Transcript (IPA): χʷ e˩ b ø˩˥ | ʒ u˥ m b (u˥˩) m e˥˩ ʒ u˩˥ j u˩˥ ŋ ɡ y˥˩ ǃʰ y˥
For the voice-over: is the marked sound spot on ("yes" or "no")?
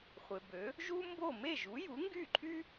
no